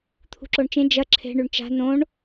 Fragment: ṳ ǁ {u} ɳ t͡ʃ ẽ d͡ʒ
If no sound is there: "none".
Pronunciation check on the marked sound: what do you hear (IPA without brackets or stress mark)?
o